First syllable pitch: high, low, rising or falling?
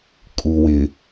low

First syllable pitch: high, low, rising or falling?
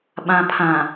low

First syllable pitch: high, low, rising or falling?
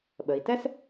low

